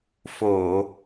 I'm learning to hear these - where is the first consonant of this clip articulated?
lips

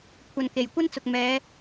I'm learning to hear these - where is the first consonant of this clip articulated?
velum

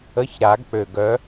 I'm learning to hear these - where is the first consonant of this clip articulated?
palate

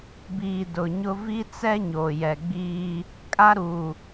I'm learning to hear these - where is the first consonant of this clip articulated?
lips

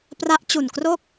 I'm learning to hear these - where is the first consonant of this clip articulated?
lips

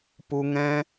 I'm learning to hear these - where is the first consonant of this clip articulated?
lips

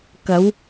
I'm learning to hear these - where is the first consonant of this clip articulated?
velum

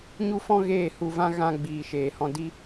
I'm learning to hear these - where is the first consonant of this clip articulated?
palate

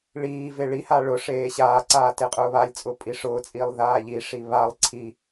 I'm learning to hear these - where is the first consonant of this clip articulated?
retroflex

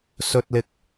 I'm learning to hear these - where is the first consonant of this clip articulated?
tongue tip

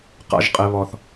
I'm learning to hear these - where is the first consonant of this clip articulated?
uvula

